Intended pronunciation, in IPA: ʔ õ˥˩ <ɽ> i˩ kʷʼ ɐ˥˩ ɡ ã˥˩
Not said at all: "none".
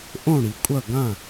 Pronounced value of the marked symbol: ɽ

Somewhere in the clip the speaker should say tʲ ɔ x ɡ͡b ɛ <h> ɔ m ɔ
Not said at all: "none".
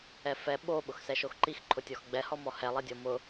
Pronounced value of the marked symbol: h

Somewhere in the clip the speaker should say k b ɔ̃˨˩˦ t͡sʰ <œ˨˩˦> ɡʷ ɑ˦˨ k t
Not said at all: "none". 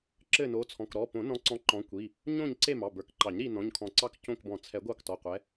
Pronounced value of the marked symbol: ɛ˨˩˦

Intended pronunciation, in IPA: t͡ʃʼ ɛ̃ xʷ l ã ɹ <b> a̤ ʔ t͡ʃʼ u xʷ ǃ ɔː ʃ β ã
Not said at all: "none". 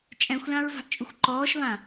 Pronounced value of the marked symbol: v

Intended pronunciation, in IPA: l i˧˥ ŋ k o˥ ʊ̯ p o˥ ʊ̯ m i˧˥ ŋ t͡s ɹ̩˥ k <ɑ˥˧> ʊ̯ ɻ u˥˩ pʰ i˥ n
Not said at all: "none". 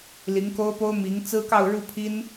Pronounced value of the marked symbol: ɑ˥˧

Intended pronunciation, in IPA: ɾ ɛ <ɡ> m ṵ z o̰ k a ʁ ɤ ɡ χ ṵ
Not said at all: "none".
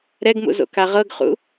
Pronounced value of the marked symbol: ɡ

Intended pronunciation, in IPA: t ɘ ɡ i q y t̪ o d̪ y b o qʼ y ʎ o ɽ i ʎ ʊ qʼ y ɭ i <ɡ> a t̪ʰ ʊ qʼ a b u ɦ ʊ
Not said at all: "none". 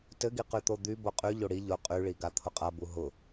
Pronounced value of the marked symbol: ɡ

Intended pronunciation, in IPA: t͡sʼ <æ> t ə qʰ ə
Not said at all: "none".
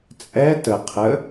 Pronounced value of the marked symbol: ɛ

